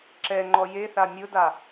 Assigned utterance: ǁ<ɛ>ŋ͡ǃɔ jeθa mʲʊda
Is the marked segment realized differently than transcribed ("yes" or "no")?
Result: no